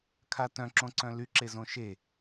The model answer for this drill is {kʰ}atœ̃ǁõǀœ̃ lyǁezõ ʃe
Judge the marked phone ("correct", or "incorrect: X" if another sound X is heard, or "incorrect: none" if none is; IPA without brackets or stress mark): correct